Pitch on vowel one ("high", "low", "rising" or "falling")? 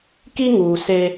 high